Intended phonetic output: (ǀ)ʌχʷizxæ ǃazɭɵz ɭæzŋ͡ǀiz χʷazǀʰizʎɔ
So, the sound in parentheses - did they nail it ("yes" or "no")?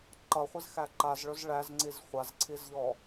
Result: no